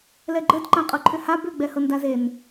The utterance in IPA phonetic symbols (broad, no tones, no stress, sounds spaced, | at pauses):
l ɛ ɡ͡ǃ ə d ǃ ã qʼ ɤ ǃʰ ʏ h a b ʏ ɡ͡b ɛ h ɤ n d a z e n